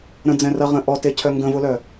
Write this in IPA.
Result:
ɾə̃d͡zɛ̃rɐʁə̃ ʔɔtecʰœ ŋɡə̃vʊlœ

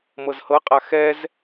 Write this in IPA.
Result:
mɤzhɤqʼa xɛz

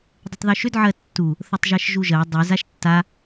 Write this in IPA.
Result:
dˤətˤðuʃʏd ʕɜtːu | θʌtˤʒɜʃʒuʒɜ dˤy zaʃtːa

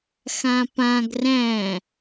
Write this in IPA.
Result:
xãpãɡ ræ̃

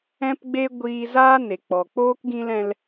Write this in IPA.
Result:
ɛ̃˦pɡ͡be˦ ɡʷiː˧zaː˦ ne˨k͡pɔ˨k͡poː˦k ɡĩ˧lɛ̃˧l

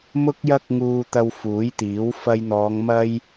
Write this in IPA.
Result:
mʊ˥k̚jɐ˥k̚ŋuː˧t̪ɐ˧w fuː˨˥jt̪iː˨˥w fɐ˧jn̪ɔː˨˧ŋ mɐ˥j

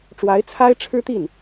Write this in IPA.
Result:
ʈ͡ʂwa˧˥ɪ̯t͡sʰa˥ɪ̯ʈ͡ʂʰɻ̩˥t̪i˥˩n

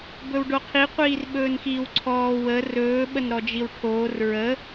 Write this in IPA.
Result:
bɵwɖoqʰi qʷiːrɓɵːnxiːwǀʰɔː wə rɵː ɓənɾɔd͡ʒiwʈʰoːr ɹə

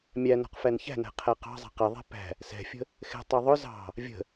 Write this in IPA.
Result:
mʲæ nɔ̤qfænçæ̤næ̤ qʰæqɑ̤zˤɛ̤ qɪðˤɛ̤ pæ̤ | sɛ̤fʲə̤ | xɛ̤tˤə˞ ðˤʊ zɑ̤ | vʲə̤

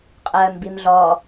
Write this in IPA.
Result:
qʼɜːmbimɮɔ

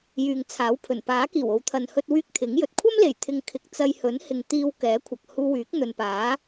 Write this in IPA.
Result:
jyː˨ŋt͡sʰaː˨˥wpʰɵ˨˩n paː˨˥ kiː˨˩wo˨wt̪ʰɐ˨n hɵ˧t̚wyː˧k̚ t̪ʰɪ˨˥ŋjɵ˨t̚ kʷʰɐ˥mle˨˩jt̪ʰɪ˨ŋ kʰɪ˨˥k̚t͡sɐ˧j hɵ˨˥nhɪ˨ŋ t̪iː˧w kɛː˨˥kʷʰɐ˨k̚huː˧wyː˨˥k̚ n̪ɵ˨npaː˨˥

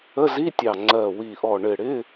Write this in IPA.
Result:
ə˧˥˧zi˧˥˧tʲɑ˧˩ ŋ͡ǀɜ˧˩wi˧˩ʔɔ˧˩ ɳɪ˧˩ɽɪ˧˥˧

